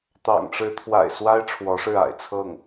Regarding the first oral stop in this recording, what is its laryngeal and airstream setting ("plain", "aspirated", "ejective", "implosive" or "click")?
plain